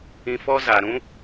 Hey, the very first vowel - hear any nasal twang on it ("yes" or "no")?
yes